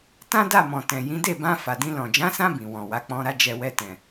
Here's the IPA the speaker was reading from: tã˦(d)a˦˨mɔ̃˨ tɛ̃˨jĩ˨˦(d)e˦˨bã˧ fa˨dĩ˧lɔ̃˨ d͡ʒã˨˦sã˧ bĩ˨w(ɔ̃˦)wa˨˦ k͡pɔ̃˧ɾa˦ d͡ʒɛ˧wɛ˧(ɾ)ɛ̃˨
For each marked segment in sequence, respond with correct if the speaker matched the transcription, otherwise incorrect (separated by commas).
correct, correct, incorrect, incorrect